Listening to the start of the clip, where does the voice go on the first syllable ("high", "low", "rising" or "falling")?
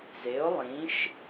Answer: rising